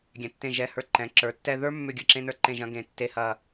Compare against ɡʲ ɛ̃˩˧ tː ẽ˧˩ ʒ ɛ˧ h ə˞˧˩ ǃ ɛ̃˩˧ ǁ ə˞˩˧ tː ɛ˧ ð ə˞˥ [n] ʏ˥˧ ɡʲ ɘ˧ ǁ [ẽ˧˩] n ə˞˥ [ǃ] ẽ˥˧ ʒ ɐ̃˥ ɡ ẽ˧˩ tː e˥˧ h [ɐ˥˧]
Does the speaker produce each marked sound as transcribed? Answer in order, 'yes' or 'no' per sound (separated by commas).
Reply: no, no, yes, yes